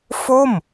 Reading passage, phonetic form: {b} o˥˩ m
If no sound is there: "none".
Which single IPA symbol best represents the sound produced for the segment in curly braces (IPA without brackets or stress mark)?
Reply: f